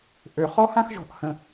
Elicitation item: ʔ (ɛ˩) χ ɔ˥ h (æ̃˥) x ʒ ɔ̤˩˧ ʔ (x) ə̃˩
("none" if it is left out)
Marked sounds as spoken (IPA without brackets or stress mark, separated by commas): ø˩, ã˥, h